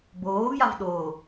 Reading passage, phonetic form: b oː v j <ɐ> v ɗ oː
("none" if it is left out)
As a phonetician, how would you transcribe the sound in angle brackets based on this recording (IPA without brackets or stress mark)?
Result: a